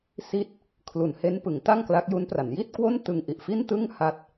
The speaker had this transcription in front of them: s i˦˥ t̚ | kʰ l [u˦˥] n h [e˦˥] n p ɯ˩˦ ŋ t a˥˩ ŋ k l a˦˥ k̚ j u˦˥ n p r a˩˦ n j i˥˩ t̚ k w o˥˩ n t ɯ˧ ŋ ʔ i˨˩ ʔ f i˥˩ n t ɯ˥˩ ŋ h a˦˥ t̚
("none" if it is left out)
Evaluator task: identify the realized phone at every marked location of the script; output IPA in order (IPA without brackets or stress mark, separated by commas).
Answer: u˨˩, e˦˥